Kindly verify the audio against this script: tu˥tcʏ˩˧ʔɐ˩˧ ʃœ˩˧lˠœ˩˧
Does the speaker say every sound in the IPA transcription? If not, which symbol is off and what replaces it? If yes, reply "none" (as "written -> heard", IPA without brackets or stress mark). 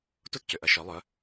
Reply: none